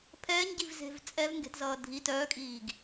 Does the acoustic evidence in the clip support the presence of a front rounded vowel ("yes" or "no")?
yes